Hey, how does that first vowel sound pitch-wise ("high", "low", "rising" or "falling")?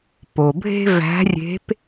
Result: low